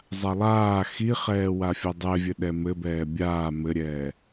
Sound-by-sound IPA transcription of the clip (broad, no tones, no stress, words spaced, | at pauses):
zˤalˠaː xiχɛːwafʲɔ dˤɛvʲɘ ɗɛmɘbɛː bʲaː mɘɾʲɛː